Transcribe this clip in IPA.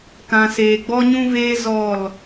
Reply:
kã˨seː˨ ɡ͡bɔ˦ɲũ˦veː˦ zɔ˦˨l

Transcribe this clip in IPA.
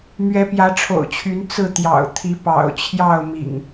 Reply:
mɥɛ˨˦pjä˨˦ʈ͡ʂʰo̰˨˩ʊ̯t͡ɕʰy˨˦n t͡sɹ̩˥˨t̪jɑ̰˨˩ʊ̯ t̪ʰi˨˦pɑ̰˨˩ʊ̯ t͡ɕʰjɑ˥˨ʊ̯mḭ˨˩ŋ

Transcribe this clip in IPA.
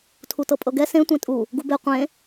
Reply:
tʰutɤpʼɤɡɛ sẽ tʷẽtʼu | ɡube qʷẽ

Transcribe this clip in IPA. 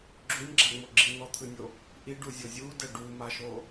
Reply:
ɡ͡ǁunʲɡ͡ǁaŋ͡mo ɡ͡ǁin̪ɔt̪ʰɯnʲo | ʔiɖuzʲo zʲudɛ ɖumaʃo

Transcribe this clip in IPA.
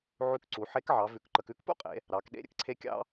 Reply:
ʕʉ˧˥kǀu˩˧ ħe˧˥kʕɑ˩˧ vʉ˩˧kǃə˩˧k ʉ˥kpṵ˥qʼḛ˩˧ | ɾɑ˩˧k ɗḛ˧˥ ɾʲə̰˩˧kǀʰe˧˥ kʲɑ̰˥

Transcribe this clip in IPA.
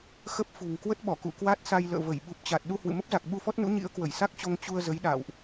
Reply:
xə˦˥p̚fṳ˨˩ŋ kwə˦˥t̚ɓɔ˧˩kṵ˧˨ kwa˦˥t̚sa˧j lə̰ː˧˨və˧˩j ɓu˨˩p̚t͡ɕa˨˩t̚ ɗu˧hwɨ̰˧˨mə˦˥p̚za˨˩k̚ ɓu˧fɔ˦˥t̚nṵ˧˥ ɲḭ˧˥ə̯kwə˧˩jsa˦˥k̚t͡ɕo˧ŋ t͡ɕu˧ə̯zə˨˦j ɗa̰ː˧˨wʔ

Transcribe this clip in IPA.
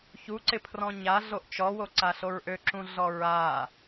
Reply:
çuǀɪpʰrɔ̃ ɲa ɮoʔt͡ʃɔwoǀa ɬoɹʔøǁũ ɮɔɹa

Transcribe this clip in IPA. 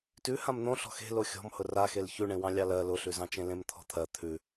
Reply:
tʉ hãmn̪õ ɬɔ̤xe̤lo xʲɔ̤m hʊra xelçʉɳẽwɑ̃ lʲɑlɜ lʊɬʉzɑ̃t͡ʃẽ lẽmt̪ʰɔ̤t̪ʰɜ t̪ʰʉ

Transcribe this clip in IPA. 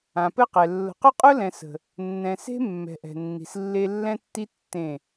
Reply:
ã˨pɘ˦qɛ˨ lːə̤˨qʊ˦qʼʊ˦lɛ̃˨ sə̤˨ | nːɛ̃˨se̤˦ mːɛ̤˨ ʔɛ̤˨nːi̤˨slːe˦ lːɛ̃˦tːi˦ tːẽ˦˨

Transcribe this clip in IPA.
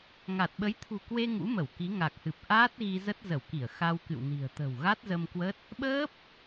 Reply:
ŋa˨˩t̚ɓə˨˦jt̪ʰṳ˨˩kwe˧ ŋṵ˧˥mə˧˩wki˨˦ ŋa˨˩k̚hɨ˨˩p̚ ʔaː˦˥t̚ɣi˧zə˦˥t̚ zə˧˩wki˧˩ə̯ xa˧wkɨ̰˧˨wni̤˨˩ə̯ t̪ə̤˨˩wɣa˦˥t̚zə˧m kwə˦˥t̚ | ɓəː˦˥p̚

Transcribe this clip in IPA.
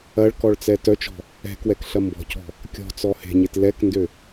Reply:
ɐɭkɔɭt͡sɛ tœt͡ʃɔ̤ | ɛ̤kwɛkɬɐ mbɔ̤cɔ̤ | kʲɔ̤t͡sɔ he̤ɲet lɛkndø

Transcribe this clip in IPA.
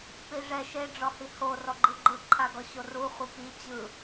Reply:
piʐɛ ʃe ɖ͡ʐɔhiho rɔɡ͡ǃɯɡ͡ǃɯ ǃʰaɡɔɕoru χʷipi t͡ɕɯ

